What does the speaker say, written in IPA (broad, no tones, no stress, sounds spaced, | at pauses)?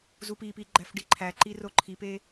z u p i p i ɡ͡ǃ æ f ɖ i ǃʰ æ ǃ i r o ǃʰ i p e